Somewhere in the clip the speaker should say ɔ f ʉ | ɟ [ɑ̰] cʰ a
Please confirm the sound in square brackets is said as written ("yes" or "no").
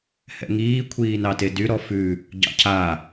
yes